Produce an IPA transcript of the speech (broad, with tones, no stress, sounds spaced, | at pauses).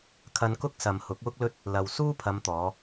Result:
kʰ ɐ˧ n k ʊ˥ k̚ s ɐ˨ m h ʊ˨˥ k̚ w ʊ˥ k̚ l ɵ˥ t̚ | l ɐ˨ w s uː˥ pʰ ɐ˨˧ m t̪ ɔː˨˧